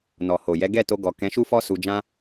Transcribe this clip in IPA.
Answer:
n ɔ˨ h o˨ j ɛ˨˦ ɡ ɛ˦˨ t o˧ ɡ ɔ˨ k ɛ̃˨˦ ʃ u˦ f ɔ˦ s u˧ d͡ʒ ã˦

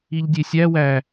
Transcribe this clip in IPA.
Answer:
i ʎ dʲ e sʲ æ w æ

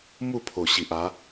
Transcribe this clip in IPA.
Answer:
m u˥˧ pʰ o˨˩ ɕ i˨ ʔ a˨˦

